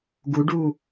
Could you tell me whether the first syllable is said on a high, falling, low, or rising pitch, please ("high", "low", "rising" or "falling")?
rising